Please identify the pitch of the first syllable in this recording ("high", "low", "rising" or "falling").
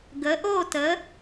rising